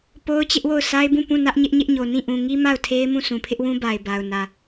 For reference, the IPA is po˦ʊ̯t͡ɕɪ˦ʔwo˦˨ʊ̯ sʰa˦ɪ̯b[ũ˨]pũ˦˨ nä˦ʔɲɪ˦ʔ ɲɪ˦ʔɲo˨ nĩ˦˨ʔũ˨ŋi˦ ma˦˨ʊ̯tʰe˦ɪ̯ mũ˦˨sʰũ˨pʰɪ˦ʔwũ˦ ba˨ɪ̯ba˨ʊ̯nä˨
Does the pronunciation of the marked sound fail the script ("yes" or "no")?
yes